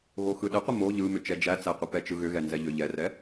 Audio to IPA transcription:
ɣ o x ɯ ɗ ə qʷ ə m o ʎ ɯ m ʏ t͡ʃ ɛ d͡ʒ æ t͡s æ qʷ ɯ p ɛ t͡ʃ ɯ ɣ ʏ ɣ ɛ n z ɛ ʎ ʏ ʎ ɛ r ɛ

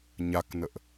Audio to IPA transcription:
ɲ a k n ə ʔ

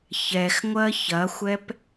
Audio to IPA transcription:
ç ɛ x ŋʷ ɜ ç ɐ xʷ ɛ p

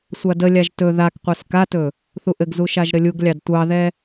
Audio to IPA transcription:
sʷ a d ə lʲ a ʒ t ɵ ð a k qʷ ɛ s k a t ɵ | θ u ʔ ɘ ɡ z u ʃ a ʒ ɾ ɘ lʲ u ɡ lʲ ɑ d tʷ ɑ ð ɛ

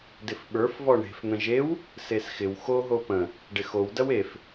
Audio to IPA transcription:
d ɪ f ɓ ə˞ f v ɔ ɳ e̤ f n̪ ə̃ ʒ e w | s e s x ɪ w x o ɦ o p ə̃ | ɖ ɪ x o w d ɐ w e f

